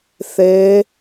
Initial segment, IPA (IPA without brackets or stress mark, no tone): θ